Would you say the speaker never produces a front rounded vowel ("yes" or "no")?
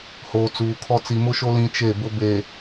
yes